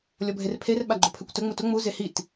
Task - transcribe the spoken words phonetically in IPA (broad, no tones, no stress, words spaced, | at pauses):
lʲɔbʱerpʰer ɓaɡ͡ǃʊpʰøkʷtə ŋ͡mutʊ ŋ͡mu zehit